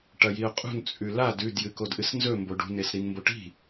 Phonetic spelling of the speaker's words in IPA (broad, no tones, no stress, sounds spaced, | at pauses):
ʈ ɐ j i ʊ̯ qʼ ṳ n t͡sʼ ʉ l a d ʉ d j ɨ k o d ʔ ɨ s n z ɵ m b o ɖ ṳ n e s ɾ i n m b o ʈ i̤